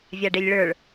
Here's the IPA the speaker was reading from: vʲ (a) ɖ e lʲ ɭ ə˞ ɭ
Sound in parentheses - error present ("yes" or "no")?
no